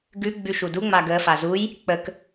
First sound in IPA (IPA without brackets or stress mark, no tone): ɡ